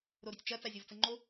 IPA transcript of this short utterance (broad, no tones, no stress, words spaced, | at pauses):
ɾoɾʏtʲt͡ʃɐ t͡sazʲovt͡səŋ͡ǃo